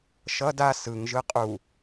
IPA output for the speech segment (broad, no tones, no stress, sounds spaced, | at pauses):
ʃ ʌ d a s ɯ ŋ ʒ ɯ qʼ u